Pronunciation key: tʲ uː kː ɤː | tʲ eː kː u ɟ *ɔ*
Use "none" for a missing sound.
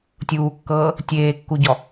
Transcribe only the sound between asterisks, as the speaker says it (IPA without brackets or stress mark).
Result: ɔ